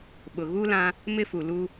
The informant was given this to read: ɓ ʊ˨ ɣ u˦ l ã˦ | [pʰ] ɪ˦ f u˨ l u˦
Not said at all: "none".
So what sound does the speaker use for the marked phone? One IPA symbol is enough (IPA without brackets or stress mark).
m